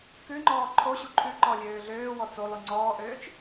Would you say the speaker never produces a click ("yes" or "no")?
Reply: no